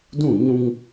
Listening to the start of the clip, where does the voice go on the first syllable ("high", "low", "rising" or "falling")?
falling